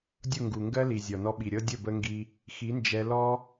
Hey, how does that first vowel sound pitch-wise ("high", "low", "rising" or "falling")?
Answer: falling